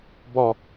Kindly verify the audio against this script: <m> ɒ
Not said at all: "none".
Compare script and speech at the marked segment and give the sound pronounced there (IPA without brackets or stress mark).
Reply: b